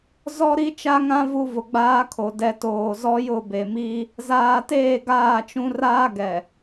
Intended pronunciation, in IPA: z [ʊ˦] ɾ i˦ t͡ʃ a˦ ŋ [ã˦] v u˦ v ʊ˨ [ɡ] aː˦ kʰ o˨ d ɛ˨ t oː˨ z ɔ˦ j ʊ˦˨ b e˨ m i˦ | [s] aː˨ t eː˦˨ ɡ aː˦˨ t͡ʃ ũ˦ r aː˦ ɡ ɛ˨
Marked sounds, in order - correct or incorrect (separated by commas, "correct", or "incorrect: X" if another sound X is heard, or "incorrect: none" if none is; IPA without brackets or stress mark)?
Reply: incorrect: ɔ˦, correct, incorrect: ɡ͡b, incorrect: z